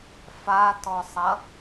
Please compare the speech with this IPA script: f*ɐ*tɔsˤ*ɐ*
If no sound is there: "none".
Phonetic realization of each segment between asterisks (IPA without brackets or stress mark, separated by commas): a, ɐ